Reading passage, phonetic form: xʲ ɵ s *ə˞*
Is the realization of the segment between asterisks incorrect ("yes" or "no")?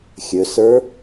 no